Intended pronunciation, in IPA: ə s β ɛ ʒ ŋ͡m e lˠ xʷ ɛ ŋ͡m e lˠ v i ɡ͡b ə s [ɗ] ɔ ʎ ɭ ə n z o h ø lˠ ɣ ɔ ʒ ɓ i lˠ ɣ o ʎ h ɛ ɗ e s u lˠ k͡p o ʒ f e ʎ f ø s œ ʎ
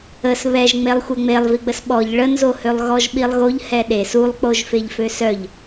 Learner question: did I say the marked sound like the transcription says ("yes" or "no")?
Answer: no